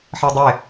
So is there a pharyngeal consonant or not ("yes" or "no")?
yes